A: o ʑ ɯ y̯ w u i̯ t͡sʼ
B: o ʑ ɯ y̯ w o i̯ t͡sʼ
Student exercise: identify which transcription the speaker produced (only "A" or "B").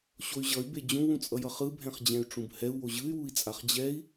A